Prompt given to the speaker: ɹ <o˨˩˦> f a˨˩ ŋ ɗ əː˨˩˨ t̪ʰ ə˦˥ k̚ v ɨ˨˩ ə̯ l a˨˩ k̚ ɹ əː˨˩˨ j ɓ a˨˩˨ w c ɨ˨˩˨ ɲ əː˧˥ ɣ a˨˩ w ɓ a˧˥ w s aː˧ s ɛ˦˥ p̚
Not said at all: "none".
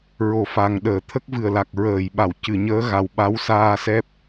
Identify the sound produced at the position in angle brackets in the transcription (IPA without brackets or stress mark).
o˨˩˦